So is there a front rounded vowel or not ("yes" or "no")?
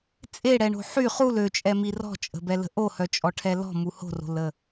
yes